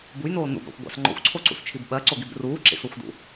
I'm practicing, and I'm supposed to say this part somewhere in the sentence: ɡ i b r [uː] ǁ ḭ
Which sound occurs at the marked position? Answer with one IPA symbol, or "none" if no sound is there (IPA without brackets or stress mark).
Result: uː